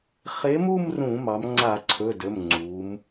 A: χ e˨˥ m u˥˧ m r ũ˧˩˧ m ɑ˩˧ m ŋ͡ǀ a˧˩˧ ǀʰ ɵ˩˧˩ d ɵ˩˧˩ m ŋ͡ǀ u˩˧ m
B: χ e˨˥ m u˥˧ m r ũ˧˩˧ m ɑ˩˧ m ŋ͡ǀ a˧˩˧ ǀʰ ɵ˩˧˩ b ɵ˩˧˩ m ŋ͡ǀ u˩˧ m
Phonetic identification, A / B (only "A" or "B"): A